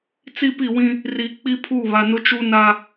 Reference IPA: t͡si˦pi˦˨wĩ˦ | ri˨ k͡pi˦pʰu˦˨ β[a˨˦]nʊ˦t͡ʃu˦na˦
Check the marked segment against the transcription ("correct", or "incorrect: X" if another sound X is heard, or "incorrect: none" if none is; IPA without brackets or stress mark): incorrect: a˨